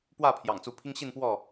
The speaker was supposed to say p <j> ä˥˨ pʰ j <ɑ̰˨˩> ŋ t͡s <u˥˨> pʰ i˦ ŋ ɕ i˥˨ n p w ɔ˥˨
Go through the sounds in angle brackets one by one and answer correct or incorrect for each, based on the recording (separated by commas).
incorrect, correct, incorrect